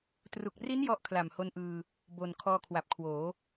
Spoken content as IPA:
tru˨˩k̚ri˦˥n jɔ˥˩ʔ kʰla˨˩mho˧nʔɯː˧ | bo˨˩n kʰɔː˧kʰwa˨˩p̚kʰwoː˩˦

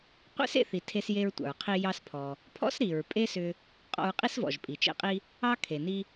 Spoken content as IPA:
qʷḛ˥s ḛ˧θi˩ tʰe˧s je˧ɹtʷɑ̰˩ɹqʰi˧ jɑ˧spʰɔ˩ | pʰɔ̰˥sɾi˩ɹ pʼe˥sʏ˧ | qʼɔ̰˧ɹqʼi˥svɔ̰˩ʒ pʼi˩t͡ʃḛ˧qʼi˧ | ɑ˥ kʰe˩ni˧

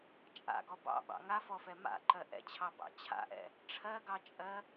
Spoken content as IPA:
t͡ʃʼa̰ɡɔ bɑ̰ɓɑ̰ ŋafɔfɛ ma̰ǃɜ ʔɛ̰t͡ɕʰɑbɑ̰ t͡ɕʰa̰ʔɛ̰ | ʈ͡ʂʰɜɡɑt͡ʃʼɜ

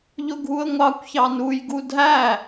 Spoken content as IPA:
ʎʊɡʱuə̯ŋʷɑkʷçɑ nujɡu dʱæ

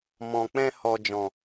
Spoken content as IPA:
mɔ̃˨ k͡pɛ̃˧hɔ˨d͡ʒɔ̃˨

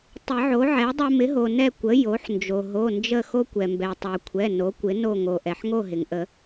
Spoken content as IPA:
tˤɪ˨˩˦ʕo˩˥ʕɛ˩˥dˤo˦ mɪ˩˥ɦo˩nɛ˦˨ kʷə˩˥ jo˩˥ħnd͡ʒo˩ ɦo˩˧˩nd͡ʒə˦˨ xo˦kʷɛ˩mbɛ˩ tˤo˩kʷʰɛ˩˧˩ no˩˥kʷɪ˩˥no˦˨ ŋo˩ʔɛ˩ħ ŋo˦˨ɦɪ˩ŋʔə˨˩˦

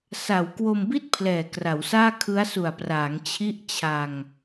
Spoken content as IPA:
sa˩˦wkwo˧mbi˥˩t̚ pʰlɛː˨˩kra˩˦wsaː˥˩ kʰɯ˦˥a̯su˨˩a̯praː˩˦ŋ t͡ɕʰi˥˩ʔt͡ɕʰa˧ŋ

